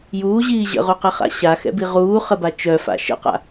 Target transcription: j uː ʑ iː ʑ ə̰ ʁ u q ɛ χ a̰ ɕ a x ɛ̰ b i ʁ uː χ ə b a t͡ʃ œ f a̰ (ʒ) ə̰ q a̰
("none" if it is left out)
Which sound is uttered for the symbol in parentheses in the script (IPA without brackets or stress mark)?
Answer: ʃ